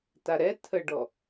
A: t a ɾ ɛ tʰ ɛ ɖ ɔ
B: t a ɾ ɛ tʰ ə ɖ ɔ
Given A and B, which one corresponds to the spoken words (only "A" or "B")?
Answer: B